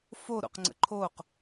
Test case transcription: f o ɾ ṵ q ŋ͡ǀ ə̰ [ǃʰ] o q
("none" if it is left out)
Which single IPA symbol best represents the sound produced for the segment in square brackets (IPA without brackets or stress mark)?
ǃʰ